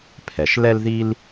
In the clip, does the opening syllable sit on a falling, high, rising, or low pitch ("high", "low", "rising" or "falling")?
low